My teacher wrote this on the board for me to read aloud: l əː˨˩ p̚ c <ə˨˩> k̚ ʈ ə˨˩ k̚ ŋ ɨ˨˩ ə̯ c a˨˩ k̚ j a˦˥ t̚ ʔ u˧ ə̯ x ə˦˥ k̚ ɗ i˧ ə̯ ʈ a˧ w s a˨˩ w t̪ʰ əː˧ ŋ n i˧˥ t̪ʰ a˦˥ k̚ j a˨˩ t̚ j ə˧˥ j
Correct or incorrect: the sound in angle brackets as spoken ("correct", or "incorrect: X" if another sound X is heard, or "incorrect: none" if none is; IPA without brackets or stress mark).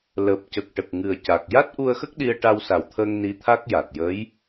correct